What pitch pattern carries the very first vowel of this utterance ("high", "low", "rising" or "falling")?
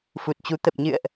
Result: low